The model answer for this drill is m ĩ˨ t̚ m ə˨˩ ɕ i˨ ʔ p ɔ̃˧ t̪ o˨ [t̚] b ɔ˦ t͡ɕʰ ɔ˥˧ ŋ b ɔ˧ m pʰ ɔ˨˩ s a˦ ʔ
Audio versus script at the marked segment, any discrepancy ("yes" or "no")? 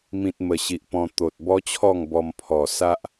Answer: no